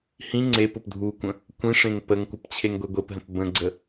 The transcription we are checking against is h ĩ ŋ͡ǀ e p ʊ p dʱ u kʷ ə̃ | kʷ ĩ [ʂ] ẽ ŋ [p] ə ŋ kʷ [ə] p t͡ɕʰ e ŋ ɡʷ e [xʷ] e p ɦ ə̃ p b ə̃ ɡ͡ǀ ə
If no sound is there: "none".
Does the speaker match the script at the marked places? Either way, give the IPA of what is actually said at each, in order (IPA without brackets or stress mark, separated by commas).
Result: ʂ, p, ə, ɡʷ